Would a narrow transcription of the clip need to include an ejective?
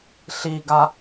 no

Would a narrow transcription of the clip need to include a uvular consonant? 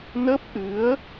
no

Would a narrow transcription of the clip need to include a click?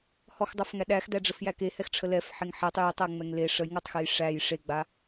no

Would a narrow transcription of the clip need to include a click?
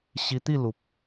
no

